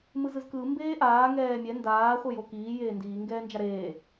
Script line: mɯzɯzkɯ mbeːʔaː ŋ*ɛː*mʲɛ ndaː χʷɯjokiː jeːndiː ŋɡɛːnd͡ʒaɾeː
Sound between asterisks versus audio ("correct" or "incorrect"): correct